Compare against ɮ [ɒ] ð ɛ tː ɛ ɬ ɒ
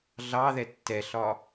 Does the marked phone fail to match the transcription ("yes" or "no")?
yes